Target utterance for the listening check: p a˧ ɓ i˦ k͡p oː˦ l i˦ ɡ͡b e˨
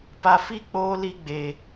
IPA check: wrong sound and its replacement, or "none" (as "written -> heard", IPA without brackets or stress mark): ɓ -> f